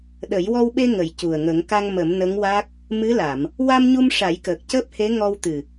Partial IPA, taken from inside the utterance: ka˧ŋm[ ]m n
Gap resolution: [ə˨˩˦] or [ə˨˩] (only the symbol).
ə˨˩˦